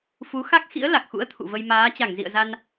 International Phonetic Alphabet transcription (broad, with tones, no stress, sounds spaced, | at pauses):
f u˨˦ x a˦˥ k̚ x ḭ˧˥ ə̯ l a˨˩ k̚ x ṵ˧˥ ə̯ t̪ʰ ṵ˧˨ v ə˧ j m aː˨˦ t͡ɕ a˧˩ ŋ z ḭ˧˨ ə̯ z a˧ n